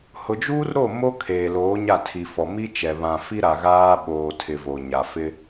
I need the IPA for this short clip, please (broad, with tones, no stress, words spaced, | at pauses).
hʊ˨d͡ʒuː˦rɾo˦˨ mo˦ kʰeː˨loː˨˦ɲa˦˨tʰi˨ fɔ˨mi˦t͡ʃɛ˨ βã˨fi˦ɾa˨ ɣaː˦ ɓoː˨tʰɪ˨ vo˨ɲa˨ fɪ˦